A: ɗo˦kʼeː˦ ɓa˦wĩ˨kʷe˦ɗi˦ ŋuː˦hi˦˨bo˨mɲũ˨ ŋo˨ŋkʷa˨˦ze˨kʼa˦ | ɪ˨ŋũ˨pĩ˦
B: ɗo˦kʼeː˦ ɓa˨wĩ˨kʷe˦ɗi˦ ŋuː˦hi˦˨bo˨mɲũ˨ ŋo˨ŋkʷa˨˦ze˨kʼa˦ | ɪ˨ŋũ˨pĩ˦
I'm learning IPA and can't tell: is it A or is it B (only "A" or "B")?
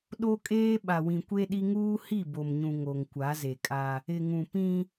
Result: B